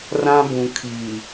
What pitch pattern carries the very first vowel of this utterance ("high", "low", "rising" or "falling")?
high